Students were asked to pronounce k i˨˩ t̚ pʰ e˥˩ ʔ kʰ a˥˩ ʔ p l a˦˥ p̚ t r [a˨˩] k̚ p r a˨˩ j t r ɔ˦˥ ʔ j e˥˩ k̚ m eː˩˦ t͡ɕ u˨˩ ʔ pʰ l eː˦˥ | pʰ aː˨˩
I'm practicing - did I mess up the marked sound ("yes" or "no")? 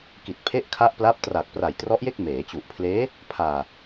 no